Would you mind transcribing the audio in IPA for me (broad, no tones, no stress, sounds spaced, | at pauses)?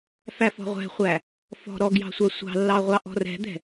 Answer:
f æ f ɔ̤ ʁʷ ɛ̤ χʷ æ | f ɔ̤ ɾ ɔ ɡ j ɑ̤ sʷ a sʷ ɑ̤ lː ɑ ʁʷ ɑ ʔ ɔ̤ r ɛ̤ d̪ ɛ̤